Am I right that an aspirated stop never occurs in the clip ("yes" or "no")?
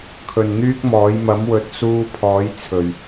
no